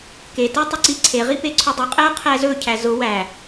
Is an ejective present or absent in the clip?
present